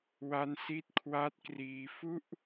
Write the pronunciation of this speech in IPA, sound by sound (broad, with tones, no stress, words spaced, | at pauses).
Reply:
wa˦˥nsi˦˥t̚kʰwa˦˥t̚ kriː˧fu˥˩ʔ